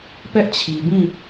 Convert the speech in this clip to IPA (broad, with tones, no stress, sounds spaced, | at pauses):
p ɛ˦ ʔ t͡ɕʰ i˨ b ĩ˦˨